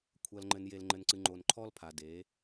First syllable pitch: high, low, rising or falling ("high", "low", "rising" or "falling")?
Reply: low